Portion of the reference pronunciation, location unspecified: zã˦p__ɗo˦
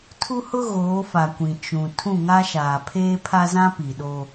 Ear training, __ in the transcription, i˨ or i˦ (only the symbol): i˨